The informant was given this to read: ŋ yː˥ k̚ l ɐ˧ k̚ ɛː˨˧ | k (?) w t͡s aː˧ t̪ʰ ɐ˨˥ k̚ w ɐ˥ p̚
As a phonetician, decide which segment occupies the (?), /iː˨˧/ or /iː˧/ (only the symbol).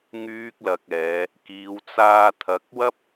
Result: iː˨˧